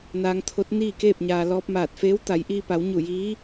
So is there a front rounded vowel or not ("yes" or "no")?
no